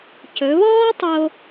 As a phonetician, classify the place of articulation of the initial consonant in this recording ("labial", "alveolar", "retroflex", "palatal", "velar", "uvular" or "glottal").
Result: palatal